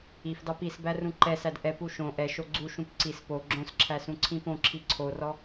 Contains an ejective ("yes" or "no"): no